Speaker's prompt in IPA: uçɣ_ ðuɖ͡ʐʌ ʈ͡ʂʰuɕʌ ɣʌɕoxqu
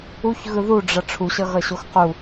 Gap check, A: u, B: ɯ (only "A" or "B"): B